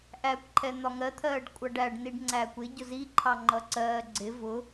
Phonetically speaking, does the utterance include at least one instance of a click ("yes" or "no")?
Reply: yes